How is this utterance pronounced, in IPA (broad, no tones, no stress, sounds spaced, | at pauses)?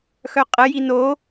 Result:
x œ qʼ ə j i n o